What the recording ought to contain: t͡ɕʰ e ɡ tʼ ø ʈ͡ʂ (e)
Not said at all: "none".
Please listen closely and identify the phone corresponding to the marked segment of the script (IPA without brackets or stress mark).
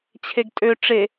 e